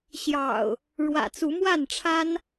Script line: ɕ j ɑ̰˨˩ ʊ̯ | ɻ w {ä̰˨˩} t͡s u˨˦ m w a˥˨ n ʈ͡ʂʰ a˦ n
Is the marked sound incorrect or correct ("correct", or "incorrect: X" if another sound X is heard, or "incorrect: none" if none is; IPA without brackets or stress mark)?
correct